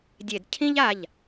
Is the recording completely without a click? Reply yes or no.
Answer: yes